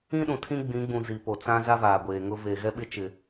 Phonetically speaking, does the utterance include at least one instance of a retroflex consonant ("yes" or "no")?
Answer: no